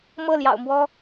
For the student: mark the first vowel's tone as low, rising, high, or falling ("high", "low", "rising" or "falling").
falling